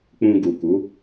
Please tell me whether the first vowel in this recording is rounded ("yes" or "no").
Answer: yes